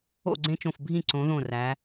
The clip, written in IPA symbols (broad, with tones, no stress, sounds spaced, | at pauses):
o̰˥˩ ɡ͡ǀ ẽ˦ t͡ʃ õ˧˩ f bʱ ĩ˥˩ ǀ õ˩˧ ð õ˧˩ r æ˩˧